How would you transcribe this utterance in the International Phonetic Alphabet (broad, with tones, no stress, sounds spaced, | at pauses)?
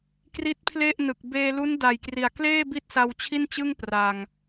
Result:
k r i˦˥ t̚ pʰ l e˥˩ ʔ n ɯ˨˩ k̚ b eː˧ l u˦˥ n d a˨˩ j k r i˨˩ a̯ k l eː˥˩ b i˥˩ t̚ s a˧ w t͡ɕʰ i˥˩ n t͡ɕ ɯ˥˩ ŋ p r a˨˩ ŋ